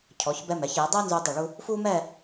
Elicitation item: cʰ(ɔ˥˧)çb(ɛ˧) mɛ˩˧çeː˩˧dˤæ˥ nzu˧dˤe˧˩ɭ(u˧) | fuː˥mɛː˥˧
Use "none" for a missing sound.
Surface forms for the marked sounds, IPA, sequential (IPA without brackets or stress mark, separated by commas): ɔ˩˧, ɛ˧, u˧